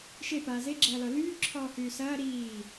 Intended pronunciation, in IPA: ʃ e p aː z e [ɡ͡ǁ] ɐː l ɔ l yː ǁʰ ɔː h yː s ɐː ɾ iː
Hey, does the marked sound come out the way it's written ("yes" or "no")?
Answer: yes